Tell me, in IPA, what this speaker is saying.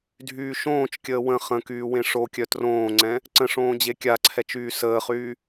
dʱ yː ʃ õː t͡ʃ kʲ əː w ə̃ χ ə̃ k yː w ẽ ʂ o kʲ œ t r õː ŋ͡ǀ ɛ̃ | ǀ ə̃ ʂ õː d͡ʑ e kʲ a ǀʰ ɛ t͡ʃ yː s əː χ yː

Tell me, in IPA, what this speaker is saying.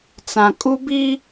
t͡s ã˨ kʼ u˦ b i˦

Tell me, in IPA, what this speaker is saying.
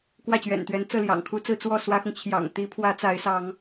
k w ä˥˩ t͡ɕ ɥ ɛ̰˨˩ n t̪ ɥ ɛ˧˥ n t͡s ɤ˥˩ l j ɑ̰˨˩ ŋ kʰ u˥ t͡s ɹ̩˥ t͡s w ɔ˥˩ s w ä˥ x ʊ˨ ŋ t͡ɕʰ j ɑ̰˨˩ ŋ t̪ i˧˥ pʰ w ä˧˥ t͡s a˧˥ ɪ̯ s ɑ˧˥ ŋ

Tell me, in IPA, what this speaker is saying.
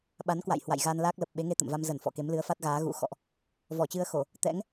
ɓ a˨˦ n k w a̰˧˨ j h w a̰˧˨ j ɣ a˧ n l aː˦˥ k̚ l ə˨˩ p̚ ɓ e˨˦ ŋ e˧ t̪ ə̰˧˨ m v a˧ m z ə˧˩ n f ɔ̰˧˨ k e˨˦ m l ɨ˨˦ ə̯ f a˦˥ t̚ ɣ aː˨˦ ɣ ṵ˧˥ x ɔ̰˧˨ ʔ | v ɔ˧˩ t͡ɕ ɨ˧ ə̯ x o˧˩˨ | t̪ ɛ̰˧˥ ŋ

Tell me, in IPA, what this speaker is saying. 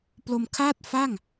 p l o˧ m kʰ aː˥˩ t̚ f a˥˩ ŋ

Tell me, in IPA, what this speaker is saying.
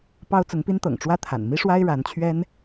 p ɑ˥ ʊ̯ t͡s ʊ˧˥ ŋ p i˥ n t̪ ɤ̰˨˩ ŋ ʈ͡ʂ w ä˥ t̪ʰ a̰˨˩ n m i˥ ʂ w a˥ ɪ̯ ɻ a˧˥ n t͡ɕʰ ɥ ɛ˥ n

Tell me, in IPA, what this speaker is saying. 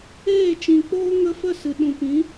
eː˦˨ t͡ʃ ĩ˨ k͡p oː˦ ŋ ə˧ f ə˦˨ s ɨ˨ ɗ ũ˨ p ĩ˨˦

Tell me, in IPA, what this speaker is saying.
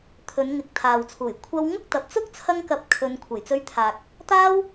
t̪ʰ ɵ˨˧ n ŋ ɪ˨˥ k̚ t̪ʰ aː˨ w t͡sʰ uː˨˩ j kʷʰ ɐ˥ w ŋ ʊ˥ k̚ t̪ ɐ˨ p̚ t͡s ʊ˥ k̚ t͡sʰ ɐ˥ ŋ k ɐ˧ p̚ kʰ ɵ˨˧ n kʷʰ ɐ˨˩ j t͡s ɵ˧ ɥ t̪ʰ aː˨ k̚ | t̪ aː˥ w

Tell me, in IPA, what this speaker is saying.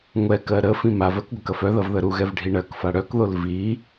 ŋʷ ɛ k ɜ ɾ ə f ĩ m a v ɜ k ɡʷ ɐ k ɐ f œ ð ɐ v ð ə ɾ u ɣ ɛ v ɖʱ i ɳ ɜ k f a ɽ œ k ð o l v i

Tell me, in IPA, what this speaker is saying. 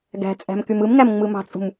ɡ æ̤ t͡sʼ æ̤ m k y m ɯ m ŋ æ m ŋ͡m ɯ m ɑ̤ t͡sʼ ṳ m

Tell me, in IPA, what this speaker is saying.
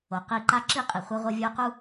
o˨ q i˧ ǃ a˦ ǁ i˦˨ qʼ i˨ χʷ ʌ˧ ʁʷ ʌ˧ vʲ o˦ q u˦

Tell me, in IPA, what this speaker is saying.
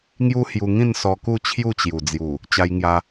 ŋ j u˦ h j u˧ ŋ ĩ˥˧ n s ɔ˧ k u˥˧ t͡ɕʰ j u˥˧ t͡ɕ j u˨˩ d͡z j u˨˩ | t͡ɕ a˧ j ŋ j a˧

